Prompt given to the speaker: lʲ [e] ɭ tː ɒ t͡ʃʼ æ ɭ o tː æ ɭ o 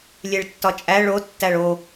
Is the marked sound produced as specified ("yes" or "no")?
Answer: yes